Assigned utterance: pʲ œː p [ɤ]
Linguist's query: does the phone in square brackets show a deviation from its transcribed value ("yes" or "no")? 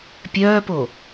yes